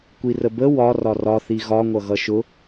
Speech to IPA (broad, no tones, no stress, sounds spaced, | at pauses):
kʷ i r ə b ə w ɒ r ɒ r ɒ θ i ɣ ɒ ŋʷ ʌ ɣ ʌ ʃ ʊ